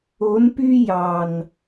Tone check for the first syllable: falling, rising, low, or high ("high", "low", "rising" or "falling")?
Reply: rising